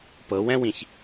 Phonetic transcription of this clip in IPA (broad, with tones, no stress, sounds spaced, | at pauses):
p ɤ˨˦ w ɛ̃˦ w ĩ˨ ç